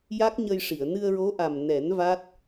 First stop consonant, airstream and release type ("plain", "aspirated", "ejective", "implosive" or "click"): plain